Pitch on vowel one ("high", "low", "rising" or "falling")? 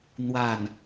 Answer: falling